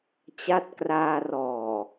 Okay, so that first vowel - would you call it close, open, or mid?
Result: open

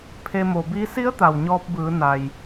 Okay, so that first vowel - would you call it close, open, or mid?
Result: mid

